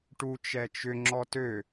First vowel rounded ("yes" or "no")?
yes